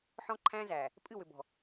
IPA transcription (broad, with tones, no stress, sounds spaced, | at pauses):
ħ ɔ̃˦ ǃʰ æ̃˦ z æ˨ | pʼ ɨ˦˨ w ʏ˨ b ɔ̤˨